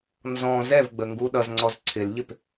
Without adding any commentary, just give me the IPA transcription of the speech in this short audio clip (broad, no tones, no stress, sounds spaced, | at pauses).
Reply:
n z ɔ̃ z ɛ v ɡ͡b ə ŋ ɡ u ɗ ʌ z ŋ͡ǀ ɔ z ǀʰ ɪ l ʎ ɪ p